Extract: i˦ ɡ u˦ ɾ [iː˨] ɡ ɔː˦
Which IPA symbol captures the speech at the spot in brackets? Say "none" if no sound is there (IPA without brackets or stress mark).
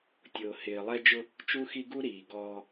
iː˨